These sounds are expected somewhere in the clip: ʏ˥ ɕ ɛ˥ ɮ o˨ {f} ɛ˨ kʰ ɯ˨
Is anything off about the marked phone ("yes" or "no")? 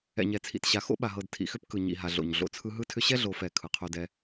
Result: no